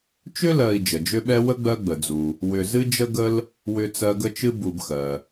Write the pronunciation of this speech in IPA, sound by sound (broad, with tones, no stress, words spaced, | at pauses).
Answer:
t͡ʃʏ˦lɜ˨i̯ d͡ʒə˩d͡ʒʏ˦ɓɛ˦ wə˥ɡ͡bɜ˦ɡ͡bə˩d͡zu˩ | wʏ˨zɨ˥d͡ʒə˥ɡə˥l | wʏ˦t͡sɜ˦ɡə˥t͡ʃɨ˥ bu˨bxɜ˩